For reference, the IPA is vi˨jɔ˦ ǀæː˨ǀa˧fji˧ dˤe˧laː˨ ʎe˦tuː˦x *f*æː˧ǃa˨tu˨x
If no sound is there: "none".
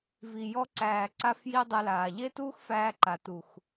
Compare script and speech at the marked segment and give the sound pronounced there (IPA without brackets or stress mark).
f